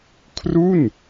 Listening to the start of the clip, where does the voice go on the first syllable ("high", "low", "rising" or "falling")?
falling